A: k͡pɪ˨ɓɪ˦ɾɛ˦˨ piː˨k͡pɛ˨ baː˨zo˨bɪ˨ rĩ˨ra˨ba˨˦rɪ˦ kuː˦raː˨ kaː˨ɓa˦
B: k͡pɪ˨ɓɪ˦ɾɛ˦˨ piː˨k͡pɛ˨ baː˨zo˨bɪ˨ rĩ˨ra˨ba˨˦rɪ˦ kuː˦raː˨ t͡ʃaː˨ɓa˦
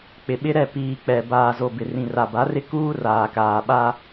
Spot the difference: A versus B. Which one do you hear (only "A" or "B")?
A